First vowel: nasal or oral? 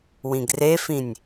nasal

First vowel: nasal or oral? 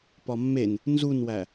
oral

